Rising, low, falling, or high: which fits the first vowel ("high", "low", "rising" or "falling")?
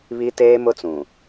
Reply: high